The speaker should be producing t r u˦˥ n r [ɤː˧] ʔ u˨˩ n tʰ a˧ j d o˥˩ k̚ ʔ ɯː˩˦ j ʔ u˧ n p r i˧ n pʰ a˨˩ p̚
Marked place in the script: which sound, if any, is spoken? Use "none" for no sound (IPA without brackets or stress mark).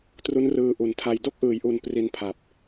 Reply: ɯː˧